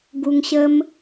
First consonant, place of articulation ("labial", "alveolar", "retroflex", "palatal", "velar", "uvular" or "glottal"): velar